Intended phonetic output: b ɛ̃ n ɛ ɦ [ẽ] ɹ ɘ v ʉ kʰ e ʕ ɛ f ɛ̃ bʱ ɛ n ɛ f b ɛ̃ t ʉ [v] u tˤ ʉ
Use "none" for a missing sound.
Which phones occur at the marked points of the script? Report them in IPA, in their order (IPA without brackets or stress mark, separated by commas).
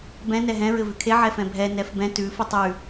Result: ɛ̃, f